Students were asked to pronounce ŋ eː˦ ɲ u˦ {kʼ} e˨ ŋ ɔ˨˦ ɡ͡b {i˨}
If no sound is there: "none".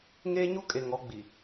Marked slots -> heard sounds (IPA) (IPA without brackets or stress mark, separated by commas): kʼ, i˨